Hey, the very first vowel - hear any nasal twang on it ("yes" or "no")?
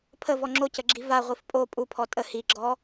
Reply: no